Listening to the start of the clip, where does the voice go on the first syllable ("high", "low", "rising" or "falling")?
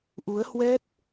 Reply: rising